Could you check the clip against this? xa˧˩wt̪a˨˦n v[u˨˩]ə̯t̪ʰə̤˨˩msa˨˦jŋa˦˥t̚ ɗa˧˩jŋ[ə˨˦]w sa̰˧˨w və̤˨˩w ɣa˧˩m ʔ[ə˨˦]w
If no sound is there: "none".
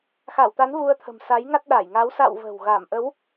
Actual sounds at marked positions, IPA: u˧, a˨˦, ə˨˦

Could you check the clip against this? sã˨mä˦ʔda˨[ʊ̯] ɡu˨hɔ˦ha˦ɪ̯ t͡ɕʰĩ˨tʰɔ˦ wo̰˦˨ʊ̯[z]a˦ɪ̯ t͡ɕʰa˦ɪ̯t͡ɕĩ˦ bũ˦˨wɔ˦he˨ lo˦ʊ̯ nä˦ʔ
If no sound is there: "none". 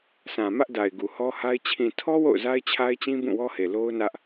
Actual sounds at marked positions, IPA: ɪ̯, z

